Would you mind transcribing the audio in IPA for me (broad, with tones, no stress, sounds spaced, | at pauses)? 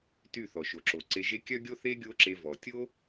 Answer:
t y˦˨ θ ɔ˨ ʃ o˨ ǁ o˨ ǀ e˧ ʒ e˦ kʲ œ˦ ɡʲ o˦ θ e˦ ɡʲ o˦ ǁ e˧ v ɔ˨ tʲ o˦